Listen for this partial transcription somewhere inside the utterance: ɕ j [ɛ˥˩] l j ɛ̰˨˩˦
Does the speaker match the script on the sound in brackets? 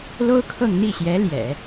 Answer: no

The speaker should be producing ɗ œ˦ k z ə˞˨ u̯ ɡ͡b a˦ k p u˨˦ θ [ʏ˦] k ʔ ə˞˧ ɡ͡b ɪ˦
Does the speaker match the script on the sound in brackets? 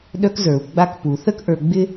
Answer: no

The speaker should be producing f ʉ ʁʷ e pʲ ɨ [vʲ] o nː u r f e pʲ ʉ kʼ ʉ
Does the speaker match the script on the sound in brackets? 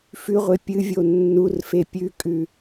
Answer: yes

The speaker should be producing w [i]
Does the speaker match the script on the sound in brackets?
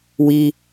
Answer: yes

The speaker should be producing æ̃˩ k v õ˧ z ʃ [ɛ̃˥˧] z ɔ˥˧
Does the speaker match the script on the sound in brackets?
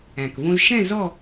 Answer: yes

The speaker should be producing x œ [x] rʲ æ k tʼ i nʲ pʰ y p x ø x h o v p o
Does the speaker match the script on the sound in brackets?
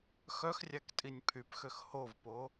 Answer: yes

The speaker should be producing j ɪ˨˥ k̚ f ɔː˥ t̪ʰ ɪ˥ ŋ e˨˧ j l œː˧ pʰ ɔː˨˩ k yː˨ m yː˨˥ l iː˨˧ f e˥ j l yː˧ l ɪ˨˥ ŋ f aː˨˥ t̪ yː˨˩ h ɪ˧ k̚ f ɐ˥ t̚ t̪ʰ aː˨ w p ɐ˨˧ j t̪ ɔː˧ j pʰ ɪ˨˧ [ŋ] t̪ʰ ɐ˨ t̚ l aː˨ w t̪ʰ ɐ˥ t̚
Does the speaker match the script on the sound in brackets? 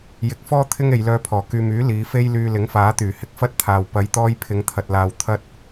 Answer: yes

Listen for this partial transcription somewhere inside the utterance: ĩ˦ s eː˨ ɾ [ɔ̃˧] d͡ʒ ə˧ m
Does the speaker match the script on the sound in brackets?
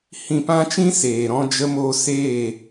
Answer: yes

